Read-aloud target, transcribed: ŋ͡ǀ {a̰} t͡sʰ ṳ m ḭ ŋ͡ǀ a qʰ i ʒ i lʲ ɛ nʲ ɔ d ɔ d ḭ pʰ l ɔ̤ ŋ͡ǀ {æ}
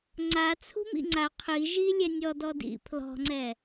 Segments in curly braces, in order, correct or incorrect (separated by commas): incorrect, incorrect